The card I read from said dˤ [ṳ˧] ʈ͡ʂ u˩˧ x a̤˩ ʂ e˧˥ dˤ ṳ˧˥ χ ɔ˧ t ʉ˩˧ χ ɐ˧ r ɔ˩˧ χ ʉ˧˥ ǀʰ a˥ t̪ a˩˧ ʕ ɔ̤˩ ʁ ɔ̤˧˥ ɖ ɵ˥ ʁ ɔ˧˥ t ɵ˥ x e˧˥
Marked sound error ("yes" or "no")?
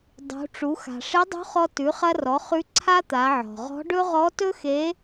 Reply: yes